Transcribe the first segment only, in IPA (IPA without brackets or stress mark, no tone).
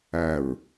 æ